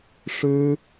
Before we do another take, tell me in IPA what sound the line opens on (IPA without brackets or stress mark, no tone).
ʂ